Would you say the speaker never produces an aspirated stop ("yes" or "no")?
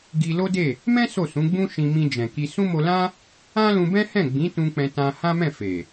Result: yes